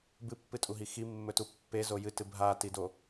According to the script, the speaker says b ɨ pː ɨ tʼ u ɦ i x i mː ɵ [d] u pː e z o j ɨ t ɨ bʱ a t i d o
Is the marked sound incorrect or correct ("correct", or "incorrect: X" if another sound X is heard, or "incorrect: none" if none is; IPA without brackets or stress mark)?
incorrect: t